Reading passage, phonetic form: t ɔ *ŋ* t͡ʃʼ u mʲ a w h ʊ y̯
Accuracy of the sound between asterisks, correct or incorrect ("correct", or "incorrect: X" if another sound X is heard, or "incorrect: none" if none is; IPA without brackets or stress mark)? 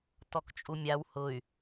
incorrect: k